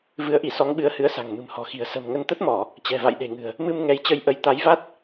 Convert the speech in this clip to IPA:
v ɨ˨˦ ə̯ ʔ i˧˩ s ɔ˨˦ ŋ ɓ ɨ˨˦ ə̯ h ɨ˨˦ ə̯ s a̤˨˩ ŋ m ɨ̤˨˩ m h ɔ̤˨˩ x i̤˨˩ ə̯ s ə̤˨˩ m ŋ ə˧ n t̪ ə˦˥ t̚ m ɔ˧˩˨ | t͡ɕ ɛ̤˨˩ v a̰˧˨ j ɗ e̤˨˩ ŋ ɨ̤˨˩ ə̯ | m ɨ˧ m ŋ ɛ˨˦ j t͡ɕ ə˧ j ʔ ə˨˦ j t̪ a˨˦ j v a˦˥ t̚

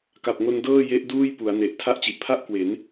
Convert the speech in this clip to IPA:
k a˨˩ p̚ ŋ o˧ n d ɤː˥˩ j e˦˥ ʔ d uː˥˩ j p u˩˦ a̯ n e˨˩ ʔ tʰ a˦˥ ʔ t͡ɕ i˨˩ ʔ pʰ a˥˩ ʔ k w e˩˦ n

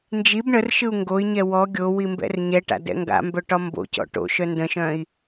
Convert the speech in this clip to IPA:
n d͡ʒ i b ɳ ə r ʃ ɯ u̯ ŋ ɡ o i̯ ɲ ɛ w ɔ ɡʲ o w i m b ɛ̰ r ɲ ɛ ʈ a̰ d ɛ̰ ŋ ɡ a̰ m b œ ʈ ɒ m b o̰ c ɔ̰ ʈ o̰ ʃ œ n d ə̃ ʃ œ̃ i̯

